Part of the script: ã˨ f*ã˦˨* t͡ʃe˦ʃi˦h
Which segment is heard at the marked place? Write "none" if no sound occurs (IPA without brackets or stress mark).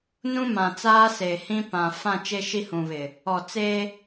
ã˦˨